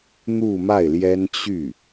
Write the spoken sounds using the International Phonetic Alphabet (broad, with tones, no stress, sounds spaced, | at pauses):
n̪ u˥˧ m a˥˩ ɪ̯ l j ɛ˥ n t͡ɕ y˥˩